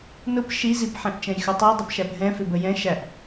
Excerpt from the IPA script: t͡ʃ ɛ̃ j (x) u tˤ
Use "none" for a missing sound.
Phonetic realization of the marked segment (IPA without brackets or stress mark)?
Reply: x